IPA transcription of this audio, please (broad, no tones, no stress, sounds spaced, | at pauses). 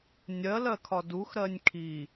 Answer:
nʲ ɜ l ɜ kʰ ɒ d u x ɾ ɜ nʲ kʰ i